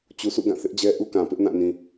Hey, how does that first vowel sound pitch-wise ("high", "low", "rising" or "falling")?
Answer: low